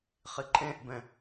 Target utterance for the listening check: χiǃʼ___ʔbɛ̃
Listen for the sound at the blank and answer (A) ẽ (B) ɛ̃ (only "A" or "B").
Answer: A